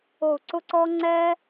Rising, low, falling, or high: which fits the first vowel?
falling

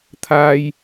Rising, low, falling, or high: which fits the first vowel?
high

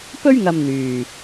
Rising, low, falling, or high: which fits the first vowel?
high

